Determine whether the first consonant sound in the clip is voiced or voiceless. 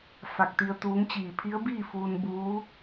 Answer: voiceless